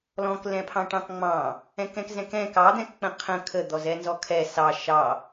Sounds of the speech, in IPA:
lɔ̃klɛ̃pʰɑ̃ ʈɑ̃kŋ͡mɑ̃ | ɛ̃kɛ̃kzɛ̃kɛ̃ kɑd̪ɛ̃kk͡pə̃ qʰə̃ kʰəd̪ɔzɛ nzɔkʰɛ sɑ ʃɑ

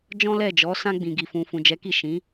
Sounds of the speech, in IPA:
d͡ʒɔ̃˦lɛ˦˨d͡ʒɔ˨˦sã˦ ɡ͡bĩ˧ɡi˧fũ˧ fũ˨d͡ʒɛ˨˦ki˦˨ ʃĩ˨˦

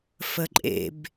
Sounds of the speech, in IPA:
fəǃʼḛb

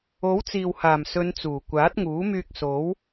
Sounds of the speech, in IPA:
o˨˥wt͡siː˨whaː˨˩msɵ˨˧n t͡suː˨˩kʷaː˨˥t̚ŋuː˨˥ myː˧k̚so˨˥w

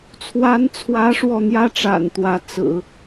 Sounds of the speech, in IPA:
t͡sʰwa˧˥nt͡sʰwä˧˥ ʂwɔ˥˩n̪jä˥ʈ͡ʂa̰˨˩n t̪wä˧˥t͡sɹ̩˨˩˦

